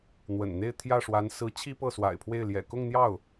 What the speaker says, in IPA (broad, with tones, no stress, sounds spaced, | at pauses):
n̪ w ə̰˨˩ n n̪ e˥˧ ɪ̯ t̪ʰ j ä˥˩ ʂ w a˧˥ n s ɹ̩˧˥ t͡ɕʰ i˥ p ɤ˥˩ s w a̰˨˩ ɪ̯ pʰ w e˥˩ ɪ̯ l j ɛ̰˨˩ k ʊ˥˧ ŋ n̪ j ɑ˥˩ ʊ̯